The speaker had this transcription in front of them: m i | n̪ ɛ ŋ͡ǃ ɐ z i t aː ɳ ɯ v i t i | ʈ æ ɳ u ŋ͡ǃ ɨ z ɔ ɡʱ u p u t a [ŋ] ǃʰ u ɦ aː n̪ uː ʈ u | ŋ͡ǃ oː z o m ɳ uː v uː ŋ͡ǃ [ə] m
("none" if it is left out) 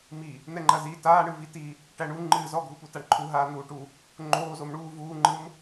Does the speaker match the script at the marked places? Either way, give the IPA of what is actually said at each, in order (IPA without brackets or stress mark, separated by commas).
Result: ɳ, ɯ